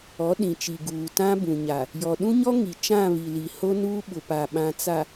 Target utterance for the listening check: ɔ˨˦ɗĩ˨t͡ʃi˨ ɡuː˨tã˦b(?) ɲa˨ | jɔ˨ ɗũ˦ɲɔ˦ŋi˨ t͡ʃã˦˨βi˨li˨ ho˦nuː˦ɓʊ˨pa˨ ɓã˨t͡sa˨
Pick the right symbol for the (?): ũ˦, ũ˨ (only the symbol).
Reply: ũ˨